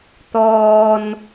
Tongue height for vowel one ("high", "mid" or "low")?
mid